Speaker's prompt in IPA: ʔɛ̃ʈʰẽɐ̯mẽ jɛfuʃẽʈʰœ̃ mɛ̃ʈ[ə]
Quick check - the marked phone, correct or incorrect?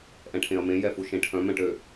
incorrect